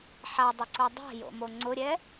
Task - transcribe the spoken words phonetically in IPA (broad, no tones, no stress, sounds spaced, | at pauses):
ħ a dˤ ʊ ǀ o dˤ a̤ j o̰ m o ŋ͡ǀ ʊ ɾʲ ɛ